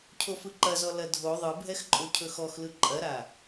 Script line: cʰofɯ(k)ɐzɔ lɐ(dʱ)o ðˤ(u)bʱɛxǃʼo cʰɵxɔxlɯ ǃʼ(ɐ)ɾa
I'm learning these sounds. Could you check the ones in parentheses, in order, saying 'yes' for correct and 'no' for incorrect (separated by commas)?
no, yes, no, yes